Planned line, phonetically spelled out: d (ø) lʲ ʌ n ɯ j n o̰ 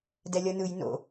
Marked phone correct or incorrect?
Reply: incorrect